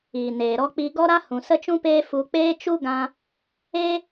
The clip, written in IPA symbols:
iː˨neː˨ɾɔ˧ k͡pi˧ɡɔ˦ɾa˦ hũ˨sə˦t͡ʃũ˦peː˦ fu˧k͡peː˦ t͡ʃu˦ɡã˧ | eː˦

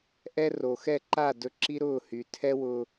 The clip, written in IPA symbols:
ʔɛ˦ ro˨xɛ˦˨ ǃa˦˨dɵ˧ ǁi˦ɾʊː˦˨hy˨ tʰɛ˦wʊː˧

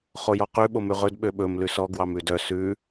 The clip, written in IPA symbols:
χojɔqʉ ɓomʉʁɵd ɓøɓɵm lʉsɔ ɡwɑmʉdœ sʉ

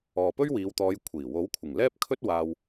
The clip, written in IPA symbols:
ɔː˨pɵ˥ɥwiː˨˧wt̪ɔː˨˧j kʷʰiː˨˩ wo˨˥wkʷʰɪ˨˩ŋlɛː˥p̚kʰɵ˥t̚ waː˧w

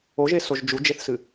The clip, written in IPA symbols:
oʒesoʒ d͡ʒud͡ʒeθsɨ

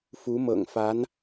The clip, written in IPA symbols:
fu˧˥mɤ̰˨˩ŋfa˧˥n

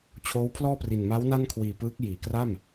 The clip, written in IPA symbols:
t͡ɕʰoː˦˥wpʰlɔː˥˩pri˨˩n ma˦˥wna˥˩n kʰwiː˨˩pɯː˦˥k̚ jiː˩˦kra˥˩m

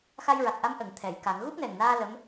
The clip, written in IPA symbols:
xa˧jɹa˨˩k̚ʔa˧˥m ʔə˨˩˨ŋt̪ʰɛ˨˩˨j ka˨˩˦ŋ ɣu˦˥p̚nɛ˨˩ŋnaː˧ lə˧˥m

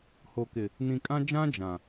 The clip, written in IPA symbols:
ho˨kɪ˨ | nĩ˨ kʼã˦d͡ʒã˦ d͡ʒã˨

